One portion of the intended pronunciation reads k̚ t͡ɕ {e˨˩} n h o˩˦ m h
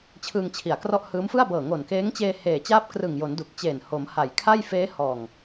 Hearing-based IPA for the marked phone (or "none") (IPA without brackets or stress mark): eː˨˩